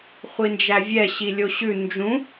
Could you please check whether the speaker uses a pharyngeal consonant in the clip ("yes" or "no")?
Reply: no